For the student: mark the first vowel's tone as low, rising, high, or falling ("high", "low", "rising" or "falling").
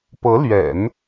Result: rising